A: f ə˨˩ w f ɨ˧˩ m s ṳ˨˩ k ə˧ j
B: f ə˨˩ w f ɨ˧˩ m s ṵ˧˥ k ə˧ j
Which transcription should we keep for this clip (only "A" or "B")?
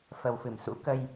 B